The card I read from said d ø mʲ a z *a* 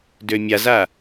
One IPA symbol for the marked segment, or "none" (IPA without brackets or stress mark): a